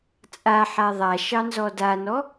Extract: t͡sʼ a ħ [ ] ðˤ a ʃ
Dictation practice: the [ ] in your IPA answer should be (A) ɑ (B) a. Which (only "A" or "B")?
B